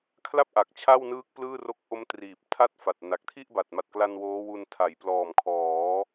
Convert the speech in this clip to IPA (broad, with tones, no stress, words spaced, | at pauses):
kʰla˥˩p̚ʔa˨˩k̚ t͡ɕʰa˥˩wnɯː˦˥k̚ plɯː˥˩ro˦˥k̚ ʔo˦˥mtriː˨˩p̚tʰa˥˩t̚fa˨˩t̚ na˨˩k̚ tʰi˥˩ʔba˨˩t̚ma˨˩t̚kla˧n woː˦˥wu˧n tʰa˩˦jplɔː˨˩m kʰɔː˩˦